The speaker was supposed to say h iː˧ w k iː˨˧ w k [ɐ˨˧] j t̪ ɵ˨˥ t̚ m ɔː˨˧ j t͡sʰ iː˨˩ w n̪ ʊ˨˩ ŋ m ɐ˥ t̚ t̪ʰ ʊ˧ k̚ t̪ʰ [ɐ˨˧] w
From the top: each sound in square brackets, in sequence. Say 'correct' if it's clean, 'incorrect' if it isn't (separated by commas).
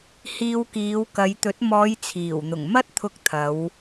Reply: correct, correct